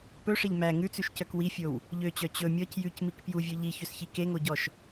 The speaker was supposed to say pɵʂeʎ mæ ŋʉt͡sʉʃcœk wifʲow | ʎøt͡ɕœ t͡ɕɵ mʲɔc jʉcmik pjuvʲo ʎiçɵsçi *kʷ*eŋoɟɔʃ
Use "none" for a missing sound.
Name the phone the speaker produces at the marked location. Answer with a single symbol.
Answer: k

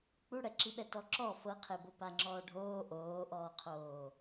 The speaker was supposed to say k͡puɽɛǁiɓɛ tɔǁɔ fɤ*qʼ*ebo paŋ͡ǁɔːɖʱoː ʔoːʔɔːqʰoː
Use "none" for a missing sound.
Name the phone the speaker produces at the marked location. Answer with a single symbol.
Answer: qʰ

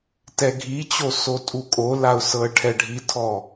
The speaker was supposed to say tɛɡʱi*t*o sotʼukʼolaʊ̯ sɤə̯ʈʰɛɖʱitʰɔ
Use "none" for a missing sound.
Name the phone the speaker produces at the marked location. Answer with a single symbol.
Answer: t͡ɕ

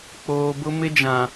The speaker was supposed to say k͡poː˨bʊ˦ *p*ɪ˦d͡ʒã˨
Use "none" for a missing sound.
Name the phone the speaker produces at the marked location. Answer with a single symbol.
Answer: m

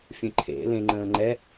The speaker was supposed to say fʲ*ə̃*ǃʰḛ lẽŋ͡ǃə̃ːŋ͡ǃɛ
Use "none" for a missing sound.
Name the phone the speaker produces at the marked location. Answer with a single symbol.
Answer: ə̃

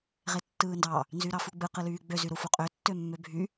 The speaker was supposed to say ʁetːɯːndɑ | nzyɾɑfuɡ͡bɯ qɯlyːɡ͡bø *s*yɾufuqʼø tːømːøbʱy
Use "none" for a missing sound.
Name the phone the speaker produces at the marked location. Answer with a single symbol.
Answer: z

